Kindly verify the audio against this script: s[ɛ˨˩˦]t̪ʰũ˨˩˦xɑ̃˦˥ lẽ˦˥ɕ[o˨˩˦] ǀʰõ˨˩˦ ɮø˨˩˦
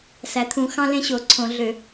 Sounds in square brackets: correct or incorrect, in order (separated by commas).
incorrect, correct